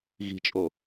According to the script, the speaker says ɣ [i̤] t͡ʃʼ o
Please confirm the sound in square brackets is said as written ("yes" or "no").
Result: yes